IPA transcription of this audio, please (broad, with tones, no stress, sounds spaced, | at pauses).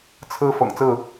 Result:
t͡sʰ ɹ̩˦ f ɤ̰˨˩ ŋ t͡s ɹ̩˥˨